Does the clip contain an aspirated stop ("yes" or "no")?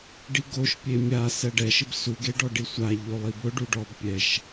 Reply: no